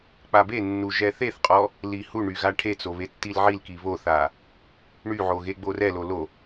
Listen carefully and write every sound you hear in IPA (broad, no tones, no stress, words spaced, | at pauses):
k͡pabenːu ʒɛθeθqʼɔ | lihuɳy ɣaʈʰet͡so βetːilʕilki βoθa | ɳyʕo ɣeɡ͡borɛlo lo